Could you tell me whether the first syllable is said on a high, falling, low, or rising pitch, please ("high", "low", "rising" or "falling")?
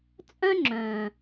high